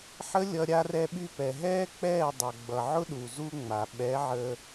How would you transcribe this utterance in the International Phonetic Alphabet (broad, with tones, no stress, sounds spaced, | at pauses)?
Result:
ħ ə˦ lʲ ʌ˧ ɾʲ a˧ r ɛ˧ ɓ y˧ p ɛ˨ ɦ ɛː˦ k͡p ɛː˦˨ dˤ ʌ˨ ɡ͡b ʌ˨ ʕ ʊ˦ ɗ u˨ z u˦ ŋ͡m a˨ ɓ ɛ˨˦ ʕ ə˧